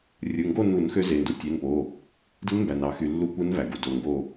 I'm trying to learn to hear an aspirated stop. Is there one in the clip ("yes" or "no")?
no